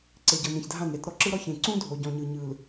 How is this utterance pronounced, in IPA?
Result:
ǀ e˨ ɟ ɤ˨ n ẽ˨ ç dʱ ã˦˨ n ɾ e˨ t ɾ ɔ˨ ǁ ɯ˦ ɾ ɔ˦ ç ẽ˨ ǀ ũ˦ dʱ o˨ ɟ ɔ̃˨ ɲ ɯ˨ ɲ ɯ˨ l

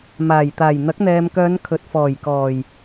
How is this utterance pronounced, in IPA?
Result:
m aː˨˩ j t̪ aː˨˩ j n̪ ɐ˨˥ k̚ n̪ ɛː˨ m k œː˨˧ n kʰ ɵ˨ t̚ f ɔː˨˩ j k ɔː˨˩ j

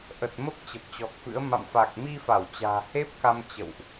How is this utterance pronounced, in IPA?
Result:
ʔ ə˨˩ t̚ m ə˦˥ p̚ t͡ɕ ə˨˩ p̚ t͡ɕ ɔ˨˩ k̚ f ɨ̰˧˥ ə̯ m a̰˧˨ m f a˨˩ k̚ m i˧ f a˧˩ w t͡ɕ a̤ː˨˩ h e˦˥ p̚ k a˧ m t͡ɕ ə̰˧˨ w ʔ

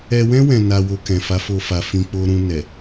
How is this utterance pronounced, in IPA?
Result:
ɛ˧ w ɛ̃˦ w ɛ̃˧ n a˧ w o˧ k ɛ̃˨ f a˨˦ f o˧ f a˨ f ĩ˧ k͡p o˨ ɾ ũ˨ n ɛ˨

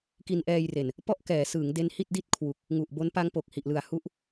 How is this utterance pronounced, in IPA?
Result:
k i˧ n ʔ ɛː˧ j r e˨˩ n | p ɔ˥˩ ʔ k ɛː˩˦ s ɯː˩˦ ŋ d e˦˥ n h i˥˩ t̚ d i˥˩ t̚ kʰ w u˨˩ k̚ | ŋ u˨˩ ʔ b o˦˥ n p a˦˥ ŋ p o˨˩ k̚ h i˨˩ ʔ l ɯ˨˩ a̯ h u˦˥ ʔ

